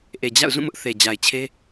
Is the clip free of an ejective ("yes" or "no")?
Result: yes